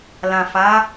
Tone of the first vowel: low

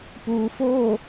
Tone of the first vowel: low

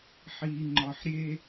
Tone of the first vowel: low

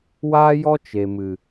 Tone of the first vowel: high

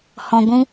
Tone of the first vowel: low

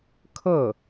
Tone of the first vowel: falling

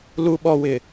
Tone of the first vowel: low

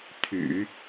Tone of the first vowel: low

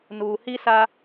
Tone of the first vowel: low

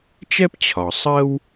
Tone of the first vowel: high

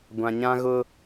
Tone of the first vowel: low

